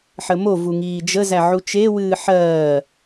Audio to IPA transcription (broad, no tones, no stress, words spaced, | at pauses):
ħəmovu ŋiːd͡ʒəzæ ʕut͡ʃewɨː ħɜː